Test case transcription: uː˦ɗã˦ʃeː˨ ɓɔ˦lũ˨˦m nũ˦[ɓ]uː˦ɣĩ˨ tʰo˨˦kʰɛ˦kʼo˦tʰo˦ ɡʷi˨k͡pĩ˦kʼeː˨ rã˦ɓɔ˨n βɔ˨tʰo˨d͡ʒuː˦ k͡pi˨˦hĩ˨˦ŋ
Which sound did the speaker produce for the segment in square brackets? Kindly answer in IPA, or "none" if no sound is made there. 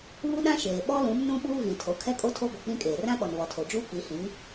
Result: ɓ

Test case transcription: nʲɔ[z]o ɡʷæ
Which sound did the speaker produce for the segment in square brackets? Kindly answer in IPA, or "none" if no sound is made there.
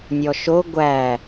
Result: ʃ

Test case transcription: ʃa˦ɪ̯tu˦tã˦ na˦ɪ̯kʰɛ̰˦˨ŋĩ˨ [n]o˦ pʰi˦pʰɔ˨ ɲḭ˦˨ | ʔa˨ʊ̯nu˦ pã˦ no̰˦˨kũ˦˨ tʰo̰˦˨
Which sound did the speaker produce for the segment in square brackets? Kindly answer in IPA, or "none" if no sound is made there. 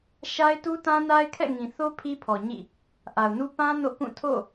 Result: θ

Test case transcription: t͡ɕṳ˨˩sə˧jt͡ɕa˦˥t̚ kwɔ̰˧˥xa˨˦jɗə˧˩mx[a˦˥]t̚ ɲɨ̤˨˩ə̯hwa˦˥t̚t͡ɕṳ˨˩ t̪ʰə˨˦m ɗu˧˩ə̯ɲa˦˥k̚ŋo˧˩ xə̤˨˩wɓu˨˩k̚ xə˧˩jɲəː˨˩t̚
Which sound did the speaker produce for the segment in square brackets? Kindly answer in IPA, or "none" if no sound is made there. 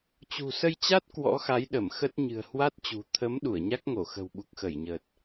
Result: ə˦˥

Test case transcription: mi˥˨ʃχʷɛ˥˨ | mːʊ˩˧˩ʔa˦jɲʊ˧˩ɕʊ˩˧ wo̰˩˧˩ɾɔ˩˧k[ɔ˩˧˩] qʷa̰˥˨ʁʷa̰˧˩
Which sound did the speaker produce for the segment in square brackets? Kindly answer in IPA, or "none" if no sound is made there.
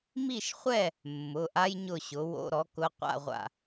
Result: ʊ˩˧˩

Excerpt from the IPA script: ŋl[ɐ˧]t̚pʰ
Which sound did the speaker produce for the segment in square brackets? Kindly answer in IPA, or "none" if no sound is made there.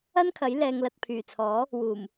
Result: ɐ˨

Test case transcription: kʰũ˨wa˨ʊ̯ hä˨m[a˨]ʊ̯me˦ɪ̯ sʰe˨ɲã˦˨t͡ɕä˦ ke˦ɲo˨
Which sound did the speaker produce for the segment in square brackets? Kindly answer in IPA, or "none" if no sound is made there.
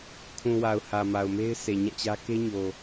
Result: a˨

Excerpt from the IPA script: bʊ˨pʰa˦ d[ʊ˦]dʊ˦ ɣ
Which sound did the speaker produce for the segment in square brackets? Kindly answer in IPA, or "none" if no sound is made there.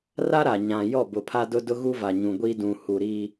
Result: ʊ˦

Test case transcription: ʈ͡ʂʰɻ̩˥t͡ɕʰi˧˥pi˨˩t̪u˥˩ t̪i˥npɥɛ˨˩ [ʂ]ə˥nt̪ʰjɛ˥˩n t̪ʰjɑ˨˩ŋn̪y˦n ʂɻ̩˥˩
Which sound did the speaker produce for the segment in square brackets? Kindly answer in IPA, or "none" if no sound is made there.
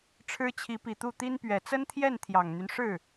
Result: t͡s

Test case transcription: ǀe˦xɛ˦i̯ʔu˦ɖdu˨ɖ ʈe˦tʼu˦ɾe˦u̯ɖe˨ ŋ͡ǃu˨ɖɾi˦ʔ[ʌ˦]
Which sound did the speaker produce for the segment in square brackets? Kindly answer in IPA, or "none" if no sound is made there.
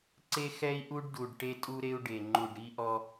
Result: ɔ˦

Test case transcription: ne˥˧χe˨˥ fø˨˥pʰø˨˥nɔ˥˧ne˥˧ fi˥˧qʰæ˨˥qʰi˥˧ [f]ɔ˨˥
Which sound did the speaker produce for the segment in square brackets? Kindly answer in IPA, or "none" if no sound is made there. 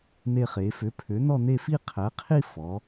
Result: f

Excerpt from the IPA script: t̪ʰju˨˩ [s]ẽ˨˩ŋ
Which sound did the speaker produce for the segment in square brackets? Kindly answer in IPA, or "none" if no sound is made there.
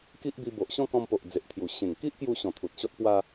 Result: ɕ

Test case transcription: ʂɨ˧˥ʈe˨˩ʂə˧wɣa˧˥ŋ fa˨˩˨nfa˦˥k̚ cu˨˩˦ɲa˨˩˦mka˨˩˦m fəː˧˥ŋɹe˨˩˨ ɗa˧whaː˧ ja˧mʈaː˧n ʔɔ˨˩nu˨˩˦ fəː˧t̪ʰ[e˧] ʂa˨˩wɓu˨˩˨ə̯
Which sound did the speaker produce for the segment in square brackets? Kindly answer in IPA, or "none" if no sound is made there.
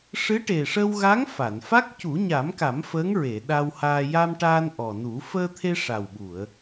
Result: e˧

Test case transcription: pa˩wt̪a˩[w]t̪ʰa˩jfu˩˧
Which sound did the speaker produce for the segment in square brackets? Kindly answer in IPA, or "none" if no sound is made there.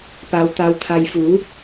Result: w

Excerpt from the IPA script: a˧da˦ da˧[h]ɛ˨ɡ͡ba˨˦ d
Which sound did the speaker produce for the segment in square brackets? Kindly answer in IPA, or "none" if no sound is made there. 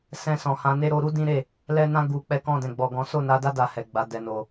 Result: h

